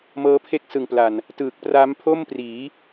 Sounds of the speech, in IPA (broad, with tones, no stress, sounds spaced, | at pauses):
m ɤː˦˥ pʰ e˥˩ k̚ s ɯ˨˩ ŋ p l a˨˩ n | t ɯː˨˩ k̚ p r a˦˥ m pʰ o˥˩ m p r iː˩˦